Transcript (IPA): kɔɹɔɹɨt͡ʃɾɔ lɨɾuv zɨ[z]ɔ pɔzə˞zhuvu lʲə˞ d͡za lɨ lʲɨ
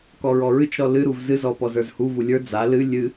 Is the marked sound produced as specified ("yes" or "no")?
yes